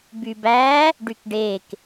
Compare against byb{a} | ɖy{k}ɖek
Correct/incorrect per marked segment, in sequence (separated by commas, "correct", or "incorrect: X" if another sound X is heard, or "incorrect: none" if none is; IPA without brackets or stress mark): incorrect: æ, correct